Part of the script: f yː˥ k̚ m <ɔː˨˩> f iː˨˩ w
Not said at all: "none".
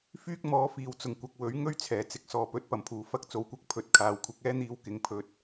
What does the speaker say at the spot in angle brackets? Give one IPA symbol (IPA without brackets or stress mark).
ɔː˨˥